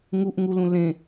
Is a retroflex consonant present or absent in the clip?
absent